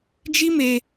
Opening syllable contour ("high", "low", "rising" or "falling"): high